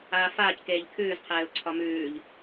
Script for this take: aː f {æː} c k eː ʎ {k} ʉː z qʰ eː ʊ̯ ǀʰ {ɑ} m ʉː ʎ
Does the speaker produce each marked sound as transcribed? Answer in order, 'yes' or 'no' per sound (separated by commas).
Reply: no, no, no